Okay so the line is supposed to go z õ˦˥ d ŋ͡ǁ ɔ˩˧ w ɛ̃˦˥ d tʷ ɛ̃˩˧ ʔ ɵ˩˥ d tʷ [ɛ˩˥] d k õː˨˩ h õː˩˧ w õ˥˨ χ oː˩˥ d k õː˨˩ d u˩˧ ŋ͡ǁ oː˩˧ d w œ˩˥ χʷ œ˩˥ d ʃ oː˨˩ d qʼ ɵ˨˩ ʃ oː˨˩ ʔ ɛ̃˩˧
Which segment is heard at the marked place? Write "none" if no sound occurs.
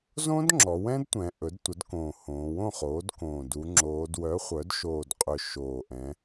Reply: ə˩˥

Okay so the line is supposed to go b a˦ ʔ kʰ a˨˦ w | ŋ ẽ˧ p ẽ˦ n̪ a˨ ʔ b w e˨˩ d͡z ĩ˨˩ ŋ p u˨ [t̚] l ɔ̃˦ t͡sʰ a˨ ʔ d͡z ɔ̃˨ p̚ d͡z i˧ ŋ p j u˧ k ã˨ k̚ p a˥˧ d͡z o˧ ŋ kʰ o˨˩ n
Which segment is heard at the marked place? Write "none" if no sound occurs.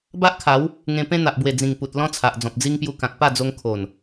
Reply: t̚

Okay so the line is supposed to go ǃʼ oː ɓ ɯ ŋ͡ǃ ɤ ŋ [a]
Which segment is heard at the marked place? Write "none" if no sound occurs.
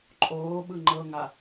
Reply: a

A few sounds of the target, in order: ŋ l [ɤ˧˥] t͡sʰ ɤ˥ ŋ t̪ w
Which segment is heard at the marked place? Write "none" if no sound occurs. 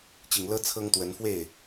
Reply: ɤ˥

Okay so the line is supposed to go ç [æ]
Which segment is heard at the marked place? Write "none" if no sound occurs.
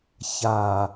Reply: a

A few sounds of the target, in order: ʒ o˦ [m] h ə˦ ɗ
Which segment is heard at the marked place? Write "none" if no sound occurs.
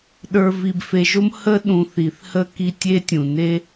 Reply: m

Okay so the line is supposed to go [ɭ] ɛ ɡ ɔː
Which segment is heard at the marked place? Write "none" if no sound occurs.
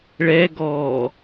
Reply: ɭ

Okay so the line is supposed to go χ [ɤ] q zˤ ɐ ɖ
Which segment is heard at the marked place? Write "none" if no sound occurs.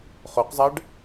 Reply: o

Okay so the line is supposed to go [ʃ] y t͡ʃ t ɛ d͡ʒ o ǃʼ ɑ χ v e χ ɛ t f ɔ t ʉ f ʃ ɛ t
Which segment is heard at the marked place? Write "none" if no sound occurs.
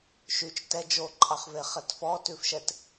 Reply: ʃ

